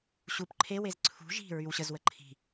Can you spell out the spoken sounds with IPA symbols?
ɕ u p ǃʰ e w e z ǀʰ ṳ ʒ i̤ ɹ y w ɕ ə z w ə ǃʰ i̤

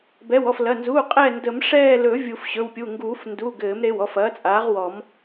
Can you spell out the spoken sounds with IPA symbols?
b ɛ˩˧˩ w ɔ˩˧˩ f l ɐ˩˧˩ n z uː˩˧˩ qʼ ɛː˦˨ n d ə˨˩˦ m ʂ ɛː˦˨ l ɵ˨˩˦ vʲ u˨˩˦ f ɕ ɵ˩˧˩ w pʲ u˩˧˩ ŋ ɡ uː˨˩˦ f n d u˩˧˩ ɡ ɘː˨˩˦ m ɾ e˩˧˩ w ɔ˦˨ f ɐː˩˥ t͡sʼ aː˩˥ ʁ w ɔ˨˩˦ m

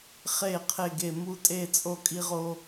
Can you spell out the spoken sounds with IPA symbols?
χ e˥˧ qʰ e˥˧ ɡ e˥˧ m u˥˧ tʼ e˥˧ t͡sʼ o˥˧ kʼ i˥ ʁ o˥

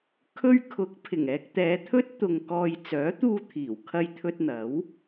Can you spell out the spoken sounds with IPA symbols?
kʰ ɵ˧ ɥ kʰ ʊ˨˥ k̚ pʰ ɪ˨˩ ŋ ɛː˧ k̚ t̪ ɛː˨˧ t̪ʰ ɵ˥ t̚ t̪ ʊ˧ ŋ k ɔː˧ j t͡s œː˨˥ t̪ uː˧ t̪ʰ iː˨˩ w kʰ ɐ˧ j t̪ʰ ɵ˧ t̚ n̪ ɐ˨˥ w

